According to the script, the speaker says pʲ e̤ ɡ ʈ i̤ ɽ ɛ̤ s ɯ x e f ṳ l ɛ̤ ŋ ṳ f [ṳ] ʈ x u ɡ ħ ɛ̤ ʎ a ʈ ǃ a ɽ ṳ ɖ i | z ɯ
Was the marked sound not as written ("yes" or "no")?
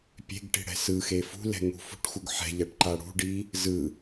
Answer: no